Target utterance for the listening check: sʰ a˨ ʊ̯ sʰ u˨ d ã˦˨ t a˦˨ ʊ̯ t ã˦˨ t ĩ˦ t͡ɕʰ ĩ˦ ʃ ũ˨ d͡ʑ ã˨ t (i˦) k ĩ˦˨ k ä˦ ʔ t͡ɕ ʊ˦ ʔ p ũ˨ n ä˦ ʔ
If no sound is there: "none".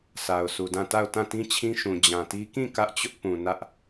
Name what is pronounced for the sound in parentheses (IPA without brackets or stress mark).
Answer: i˦